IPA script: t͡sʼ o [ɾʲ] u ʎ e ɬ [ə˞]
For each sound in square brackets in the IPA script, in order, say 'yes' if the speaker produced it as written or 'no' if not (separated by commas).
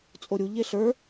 yes, yes